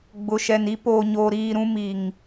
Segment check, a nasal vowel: present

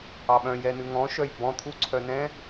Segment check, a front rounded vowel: present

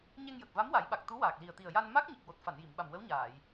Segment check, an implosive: present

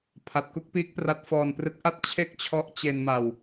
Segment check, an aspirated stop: present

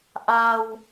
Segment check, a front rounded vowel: absent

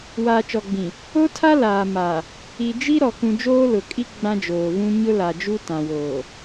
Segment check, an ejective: present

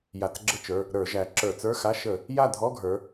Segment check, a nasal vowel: absent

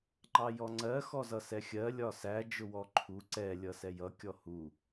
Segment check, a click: present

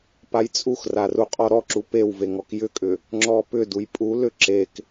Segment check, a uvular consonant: present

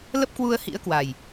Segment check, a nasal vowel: absent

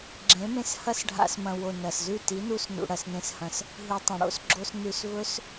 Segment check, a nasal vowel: present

